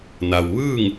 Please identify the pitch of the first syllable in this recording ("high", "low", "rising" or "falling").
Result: low